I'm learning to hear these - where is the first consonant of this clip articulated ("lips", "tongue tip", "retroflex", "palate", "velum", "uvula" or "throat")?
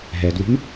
throat